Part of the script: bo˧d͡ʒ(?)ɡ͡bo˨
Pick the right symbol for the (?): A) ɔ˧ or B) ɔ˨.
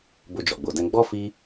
B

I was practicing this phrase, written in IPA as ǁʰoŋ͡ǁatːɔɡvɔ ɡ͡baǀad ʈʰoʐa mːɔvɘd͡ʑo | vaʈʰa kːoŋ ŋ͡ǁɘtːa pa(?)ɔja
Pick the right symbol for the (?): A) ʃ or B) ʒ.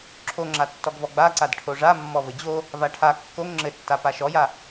A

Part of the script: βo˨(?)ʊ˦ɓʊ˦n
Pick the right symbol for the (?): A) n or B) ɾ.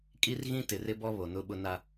A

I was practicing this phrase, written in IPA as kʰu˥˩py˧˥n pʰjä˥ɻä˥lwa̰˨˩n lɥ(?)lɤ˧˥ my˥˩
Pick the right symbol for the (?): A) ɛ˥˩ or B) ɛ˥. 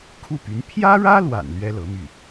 B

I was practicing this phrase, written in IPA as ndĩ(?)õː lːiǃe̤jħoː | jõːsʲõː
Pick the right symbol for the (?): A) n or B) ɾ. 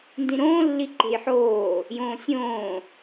B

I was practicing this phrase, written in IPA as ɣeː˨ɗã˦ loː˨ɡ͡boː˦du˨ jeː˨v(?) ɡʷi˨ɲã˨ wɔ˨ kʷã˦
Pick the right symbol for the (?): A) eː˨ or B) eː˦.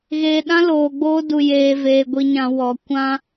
A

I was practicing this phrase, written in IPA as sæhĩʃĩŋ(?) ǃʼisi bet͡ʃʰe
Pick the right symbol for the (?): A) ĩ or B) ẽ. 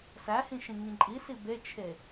A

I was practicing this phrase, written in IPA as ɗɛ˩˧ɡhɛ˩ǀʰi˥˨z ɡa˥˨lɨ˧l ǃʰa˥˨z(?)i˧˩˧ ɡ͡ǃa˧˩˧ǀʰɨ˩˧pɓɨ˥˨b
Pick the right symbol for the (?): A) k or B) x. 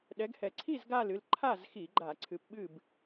B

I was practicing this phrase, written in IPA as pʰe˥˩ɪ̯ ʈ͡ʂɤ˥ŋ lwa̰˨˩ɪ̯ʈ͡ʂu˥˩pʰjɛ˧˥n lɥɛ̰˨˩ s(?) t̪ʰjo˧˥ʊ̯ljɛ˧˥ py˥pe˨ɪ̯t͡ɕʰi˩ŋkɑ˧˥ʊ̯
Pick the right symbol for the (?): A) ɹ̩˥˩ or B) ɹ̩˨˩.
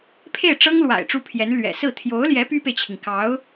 A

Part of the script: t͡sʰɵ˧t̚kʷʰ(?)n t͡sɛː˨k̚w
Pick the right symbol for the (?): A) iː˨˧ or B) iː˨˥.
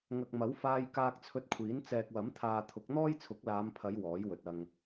B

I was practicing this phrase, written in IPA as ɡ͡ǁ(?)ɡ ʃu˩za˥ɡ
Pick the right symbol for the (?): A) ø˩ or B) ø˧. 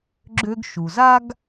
B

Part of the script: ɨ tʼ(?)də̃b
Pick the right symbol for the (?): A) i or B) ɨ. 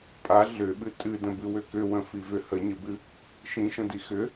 B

